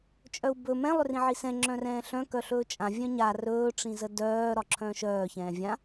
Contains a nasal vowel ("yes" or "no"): yes